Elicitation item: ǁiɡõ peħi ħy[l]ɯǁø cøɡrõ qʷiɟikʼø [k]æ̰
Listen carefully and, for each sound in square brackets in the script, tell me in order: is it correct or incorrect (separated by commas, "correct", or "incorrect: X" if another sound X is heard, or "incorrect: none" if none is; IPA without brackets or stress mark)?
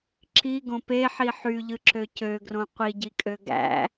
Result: incorrect: ʎ, incorrect: ɡ